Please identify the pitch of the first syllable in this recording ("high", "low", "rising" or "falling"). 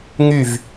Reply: falling